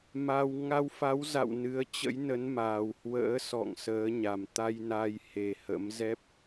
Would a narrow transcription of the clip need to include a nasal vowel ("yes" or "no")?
no